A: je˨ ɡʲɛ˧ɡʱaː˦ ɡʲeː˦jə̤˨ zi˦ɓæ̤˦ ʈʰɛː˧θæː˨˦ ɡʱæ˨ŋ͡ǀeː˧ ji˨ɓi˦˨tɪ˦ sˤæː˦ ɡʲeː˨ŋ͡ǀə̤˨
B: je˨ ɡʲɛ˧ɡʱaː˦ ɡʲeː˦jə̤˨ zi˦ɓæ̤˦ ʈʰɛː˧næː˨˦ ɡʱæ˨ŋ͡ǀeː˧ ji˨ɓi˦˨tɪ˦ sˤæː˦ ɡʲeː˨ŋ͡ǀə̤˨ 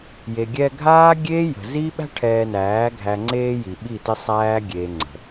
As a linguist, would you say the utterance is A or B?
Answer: B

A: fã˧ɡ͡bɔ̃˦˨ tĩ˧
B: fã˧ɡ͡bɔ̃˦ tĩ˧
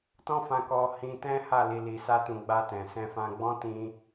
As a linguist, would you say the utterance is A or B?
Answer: B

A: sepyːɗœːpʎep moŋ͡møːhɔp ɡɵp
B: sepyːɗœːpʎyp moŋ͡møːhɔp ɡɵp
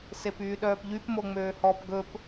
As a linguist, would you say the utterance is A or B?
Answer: B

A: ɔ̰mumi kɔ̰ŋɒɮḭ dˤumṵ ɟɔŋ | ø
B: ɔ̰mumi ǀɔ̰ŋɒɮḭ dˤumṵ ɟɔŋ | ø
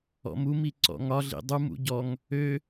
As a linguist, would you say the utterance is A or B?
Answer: B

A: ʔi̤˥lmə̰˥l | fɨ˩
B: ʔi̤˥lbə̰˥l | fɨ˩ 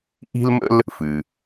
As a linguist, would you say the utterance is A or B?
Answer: A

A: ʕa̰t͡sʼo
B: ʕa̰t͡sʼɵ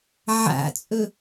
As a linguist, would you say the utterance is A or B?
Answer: B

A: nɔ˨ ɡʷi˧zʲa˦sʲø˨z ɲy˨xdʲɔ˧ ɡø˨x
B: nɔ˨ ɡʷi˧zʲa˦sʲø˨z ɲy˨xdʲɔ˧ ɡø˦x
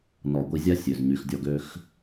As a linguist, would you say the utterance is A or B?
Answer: B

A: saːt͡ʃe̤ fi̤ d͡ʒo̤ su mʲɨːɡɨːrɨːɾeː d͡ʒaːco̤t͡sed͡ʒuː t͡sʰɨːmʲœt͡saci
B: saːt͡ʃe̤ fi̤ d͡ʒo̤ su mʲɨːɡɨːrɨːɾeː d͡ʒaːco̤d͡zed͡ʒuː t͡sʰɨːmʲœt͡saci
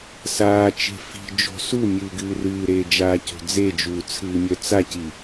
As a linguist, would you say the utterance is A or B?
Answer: B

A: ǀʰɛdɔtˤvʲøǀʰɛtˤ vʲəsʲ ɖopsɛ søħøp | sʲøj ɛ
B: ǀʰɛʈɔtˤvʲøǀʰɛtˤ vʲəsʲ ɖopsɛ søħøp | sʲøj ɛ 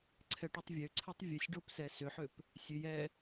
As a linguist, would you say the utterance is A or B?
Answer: B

